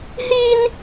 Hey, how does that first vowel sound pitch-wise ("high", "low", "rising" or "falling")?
high